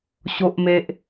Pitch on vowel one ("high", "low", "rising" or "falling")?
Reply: high